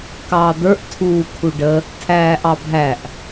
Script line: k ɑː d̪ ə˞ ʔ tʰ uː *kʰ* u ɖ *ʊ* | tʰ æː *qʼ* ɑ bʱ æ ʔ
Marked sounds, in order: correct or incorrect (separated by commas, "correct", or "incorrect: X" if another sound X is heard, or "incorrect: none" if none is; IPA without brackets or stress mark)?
correct, incorrect: ə, incorrect: ʔ